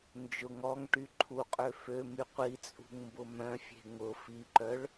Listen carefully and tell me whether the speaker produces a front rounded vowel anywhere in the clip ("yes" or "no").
yes